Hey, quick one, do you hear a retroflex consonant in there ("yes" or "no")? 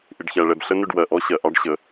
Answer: yes